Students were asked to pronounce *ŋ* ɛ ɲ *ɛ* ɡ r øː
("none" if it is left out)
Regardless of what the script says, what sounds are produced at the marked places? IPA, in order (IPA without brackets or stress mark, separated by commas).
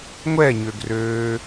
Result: ŋʷ, ø